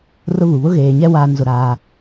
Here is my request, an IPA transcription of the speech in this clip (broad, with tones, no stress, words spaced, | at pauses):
rʊ˦βu˨ βʊ˦ɣeː˨ɲɛ˦ waː˦nzʊ˦˨ɾaː˦